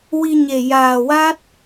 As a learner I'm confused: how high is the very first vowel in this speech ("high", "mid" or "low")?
high